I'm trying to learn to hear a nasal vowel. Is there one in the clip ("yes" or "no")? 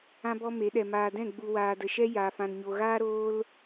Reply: yes